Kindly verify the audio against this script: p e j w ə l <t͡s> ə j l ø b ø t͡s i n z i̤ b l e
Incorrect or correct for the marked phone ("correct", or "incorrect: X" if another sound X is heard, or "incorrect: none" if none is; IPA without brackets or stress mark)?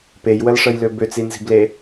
incorrect: ʂ